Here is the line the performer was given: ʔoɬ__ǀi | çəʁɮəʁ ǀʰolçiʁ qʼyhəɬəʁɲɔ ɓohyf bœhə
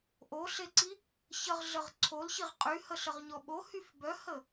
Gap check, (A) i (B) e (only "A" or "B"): B